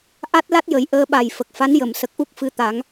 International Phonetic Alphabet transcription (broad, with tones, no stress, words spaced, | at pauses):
ʔa˦˥t̚la˦˥t̚jə˨˩˦j ʔəː˧ɓa˨˩jfə˨˩k̚fa˧˥n jə˨˩˨m sə˨˩k̚ʔu˦˥k̚ fɨ˧t̪a˨˩˦ŋ